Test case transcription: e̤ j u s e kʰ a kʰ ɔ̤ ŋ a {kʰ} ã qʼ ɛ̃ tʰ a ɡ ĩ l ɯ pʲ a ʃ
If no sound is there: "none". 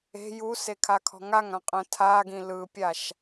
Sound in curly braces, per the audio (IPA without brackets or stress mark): ŋ